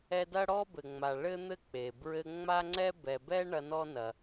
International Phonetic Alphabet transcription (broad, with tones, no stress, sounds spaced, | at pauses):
ɛ˦ d ɐ˥ ɽ ɔ˥ b ɘ˨ ŋ͡m a˨ ɭ ɘ˥ n̪ ɘ˥ k͡p e˩ b ɹ ɘ˦ ŋ͡m a˥ ŋ͡ǀ ɛ˥ b ɛ˨ b ɛ˥ ɳ ɐ˦ n ɔ˥ n ɐ˨